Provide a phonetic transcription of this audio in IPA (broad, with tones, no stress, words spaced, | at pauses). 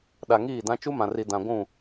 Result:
ɗa˨ŋiː˦˨dã˦ t͡ʃu˦mã˨ri˨ dã˨ɡʷũ˦˨